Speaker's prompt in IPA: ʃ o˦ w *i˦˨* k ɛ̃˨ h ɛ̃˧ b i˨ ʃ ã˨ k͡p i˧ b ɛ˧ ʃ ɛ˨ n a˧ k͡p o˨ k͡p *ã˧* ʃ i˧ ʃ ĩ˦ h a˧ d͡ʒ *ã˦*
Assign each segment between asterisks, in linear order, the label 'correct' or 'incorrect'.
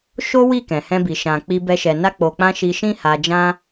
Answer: correct, correct, correct

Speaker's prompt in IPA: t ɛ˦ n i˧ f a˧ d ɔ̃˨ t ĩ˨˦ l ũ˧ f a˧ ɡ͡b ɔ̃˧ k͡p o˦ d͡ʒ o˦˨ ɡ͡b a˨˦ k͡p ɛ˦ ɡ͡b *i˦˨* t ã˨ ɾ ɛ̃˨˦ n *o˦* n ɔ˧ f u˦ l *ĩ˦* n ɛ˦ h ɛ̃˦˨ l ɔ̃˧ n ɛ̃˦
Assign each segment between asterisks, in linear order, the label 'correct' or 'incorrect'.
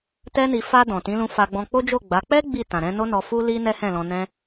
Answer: correct, correct, incorrect

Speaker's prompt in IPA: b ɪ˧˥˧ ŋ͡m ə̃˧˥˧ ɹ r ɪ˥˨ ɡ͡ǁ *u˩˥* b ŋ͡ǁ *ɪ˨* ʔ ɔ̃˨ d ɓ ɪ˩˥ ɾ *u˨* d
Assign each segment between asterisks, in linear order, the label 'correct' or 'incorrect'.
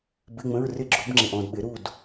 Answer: correct, correct, incorrect

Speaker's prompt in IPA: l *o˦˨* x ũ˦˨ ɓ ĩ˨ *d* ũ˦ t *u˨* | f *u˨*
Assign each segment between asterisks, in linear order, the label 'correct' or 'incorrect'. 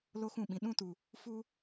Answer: incorrect, incorrect, correct, incorrect

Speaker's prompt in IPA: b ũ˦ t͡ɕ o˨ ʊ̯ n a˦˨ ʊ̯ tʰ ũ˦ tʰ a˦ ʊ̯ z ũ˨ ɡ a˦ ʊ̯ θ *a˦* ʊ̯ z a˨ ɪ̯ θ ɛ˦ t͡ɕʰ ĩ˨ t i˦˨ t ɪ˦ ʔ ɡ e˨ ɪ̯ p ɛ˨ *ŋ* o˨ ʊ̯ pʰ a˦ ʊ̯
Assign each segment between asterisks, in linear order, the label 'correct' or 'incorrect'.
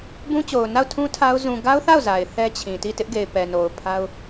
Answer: incorrect, incorrect

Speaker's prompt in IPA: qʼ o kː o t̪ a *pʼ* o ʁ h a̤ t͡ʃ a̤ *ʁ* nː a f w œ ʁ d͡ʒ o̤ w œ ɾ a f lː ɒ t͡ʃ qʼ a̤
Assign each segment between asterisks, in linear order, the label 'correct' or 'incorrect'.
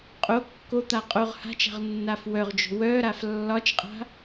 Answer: incorrect, correct

